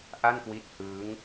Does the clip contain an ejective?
no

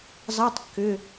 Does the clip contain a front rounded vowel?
yes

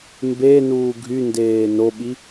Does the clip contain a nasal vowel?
no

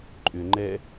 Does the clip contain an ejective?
yes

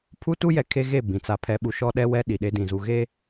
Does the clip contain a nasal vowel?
yes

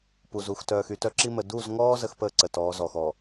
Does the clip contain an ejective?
no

